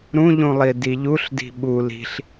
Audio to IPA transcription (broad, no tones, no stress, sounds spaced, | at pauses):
ɾ ũ ʎ ũ lˠ i d i ʎ u ɬ d i̤ ɓ u l i̤ ɬ